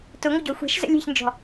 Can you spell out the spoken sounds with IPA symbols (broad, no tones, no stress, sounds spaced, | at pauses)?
t ʊ ŋʷ ə ɟ ɔ xʷ ɛ̤ ʃ z ə̰ lʲ ɛ̤ ç n d͡ʒ ɔ̤